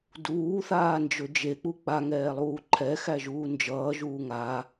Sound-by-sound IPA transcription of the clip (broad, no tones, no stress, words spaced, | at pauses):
duːθaːnd͡ʒɵ d͡ʒek͡pu k͡paŋɛːlˠuː ǃʰɛxæʒuː nd͡ʒʌːʒuː ŋa